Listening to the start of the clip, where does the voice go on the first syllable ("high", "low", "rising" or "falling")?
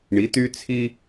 rising